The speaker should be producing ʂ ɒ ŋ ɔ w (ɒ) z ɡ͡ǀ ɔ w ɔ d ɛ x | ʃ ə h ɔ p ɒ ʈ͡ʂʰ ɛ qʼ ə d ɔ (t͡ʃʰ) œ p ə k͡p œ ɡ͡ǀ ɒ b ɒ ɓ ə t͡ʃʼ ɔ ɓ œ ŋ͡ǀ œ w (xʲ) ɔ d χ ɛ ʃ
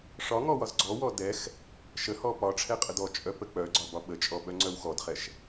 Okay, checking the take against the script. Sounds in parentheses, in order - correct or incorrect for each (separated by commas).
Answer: correct, incorrect, incorrect